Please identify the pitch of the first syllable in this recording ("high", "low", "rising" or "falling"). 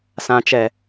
low